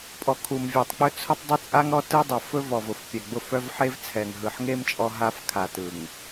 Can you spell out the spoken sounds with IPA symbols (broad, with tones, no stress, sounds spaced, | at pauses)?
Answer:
pʼ ɔ˨ kʰ u˨ m vʲ e˨ tˤ k͡p ɵ˦ t͡sʰ ʊ˦ tˤ dˤ ʊ˦ t͡sʼ a˦ ŋ ɾ ɔ˦ t ɯ˦ dˤ ʊ˨ f ɵ˦ v ɔ˨ v ʊ˨ f pʲ ɛ˨ ɡ͡b ʊ˦˨ f œ˦ v ħ e˦ v t͡sʰ ɛ˨ ŋ ɦ ɯ˨ ħ ŋ e˦ m t͡ʃʼ ɔ˦ ɦ a˦ f kʰ a˨ t ɯ˨ ŋ